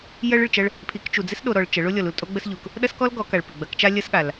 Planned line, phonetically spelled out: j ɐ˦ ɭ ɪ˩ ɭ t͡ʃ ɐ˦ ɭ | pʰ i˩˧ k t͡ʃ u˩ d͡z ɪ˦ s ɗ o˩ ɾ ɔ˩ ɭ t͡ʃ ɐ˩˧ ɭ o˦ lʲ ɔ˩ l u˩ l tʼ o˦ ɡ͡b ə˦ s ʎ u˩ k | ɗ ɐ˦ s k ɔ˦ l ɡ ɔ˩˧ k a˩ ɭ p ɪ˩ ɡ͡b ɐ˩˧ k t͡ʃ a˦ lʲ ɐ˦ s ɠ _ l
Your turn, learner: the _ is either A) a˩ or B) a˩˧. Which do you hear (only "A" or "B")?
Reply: A